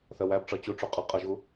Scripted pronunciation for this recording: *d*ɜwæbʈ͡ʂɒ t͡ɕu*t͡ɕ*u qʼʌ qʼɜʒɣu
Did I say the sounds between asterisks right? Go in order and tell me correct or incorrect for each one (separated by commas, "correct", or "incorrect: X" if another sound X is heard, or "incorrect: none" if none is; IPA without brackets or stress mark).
incorrect: θ, incorrect: ʈ͡ʂ